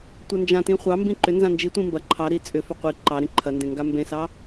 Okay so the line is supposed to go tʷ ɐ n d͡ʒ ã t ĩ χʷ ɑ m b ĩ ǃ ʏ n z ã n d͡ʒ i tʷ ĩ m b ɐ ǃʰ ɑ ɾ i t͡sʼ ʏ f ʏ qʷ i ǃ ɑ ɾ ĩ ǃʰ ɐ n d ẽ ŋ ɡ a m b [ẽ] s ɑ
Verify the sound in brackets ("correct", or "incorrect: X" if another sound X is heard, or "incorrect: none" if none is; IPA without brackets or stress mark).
correct